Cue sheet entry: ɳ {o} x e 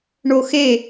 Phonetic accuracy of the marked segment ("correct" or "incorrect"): correct